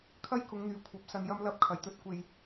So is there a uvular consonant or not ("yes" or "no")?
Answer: no